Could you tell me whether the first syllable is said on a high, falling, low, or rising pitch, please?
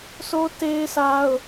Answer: high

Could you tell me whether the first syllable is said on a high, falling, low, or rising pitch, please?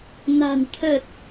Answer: low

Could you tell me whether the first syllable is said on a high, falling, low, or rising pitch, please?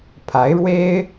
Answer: rising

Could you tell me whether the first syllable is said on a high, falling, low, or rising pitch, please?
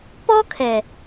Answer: high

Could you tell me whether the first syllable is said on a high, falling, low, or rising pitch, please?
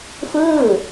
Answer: falling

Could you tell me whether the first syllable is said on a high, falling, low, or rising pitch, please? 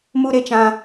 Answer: high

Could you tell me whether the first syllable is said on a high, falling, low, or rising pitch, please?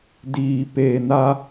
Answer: low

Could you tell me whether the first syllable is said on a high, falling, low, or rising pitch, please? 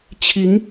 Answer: rising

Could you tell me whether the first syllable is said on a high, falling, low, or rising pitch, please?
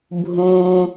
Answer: low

